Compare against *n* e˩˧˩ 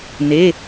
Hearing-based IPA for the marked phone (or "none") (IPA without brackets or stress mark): n